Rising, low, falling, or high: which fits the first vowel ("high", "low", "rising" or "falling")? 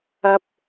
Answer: high